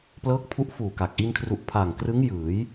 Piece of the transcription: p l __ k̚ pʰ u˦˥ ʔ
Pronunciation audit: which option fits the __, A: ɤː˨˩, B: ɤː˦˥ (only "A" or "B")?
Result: B